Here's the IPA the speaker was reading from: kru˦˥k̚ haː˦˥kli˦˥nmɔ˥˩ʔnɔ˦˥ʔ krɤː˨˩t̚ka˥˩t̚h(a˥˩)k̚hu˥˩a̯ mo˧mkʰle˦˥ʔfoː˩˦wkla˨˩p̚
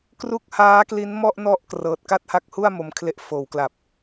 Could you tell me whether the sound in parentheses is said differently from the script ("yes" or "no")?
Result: yes